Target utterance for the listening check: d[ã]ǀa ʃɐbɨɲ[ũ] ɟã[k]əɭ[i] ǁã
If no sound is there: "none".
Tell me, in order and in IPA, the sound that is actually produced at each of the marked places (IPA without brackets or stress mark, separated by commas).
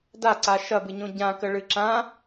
a, õ, k, ɨ